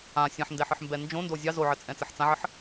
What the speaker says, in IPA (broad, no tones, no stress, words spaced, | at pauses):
ã sʲɐ̃ħndɛħɨħmbɛ nd͡ʒõndo zʲɑ zoʕət͡sʼɛ̃t͡sɐħ t͡sãʕəħ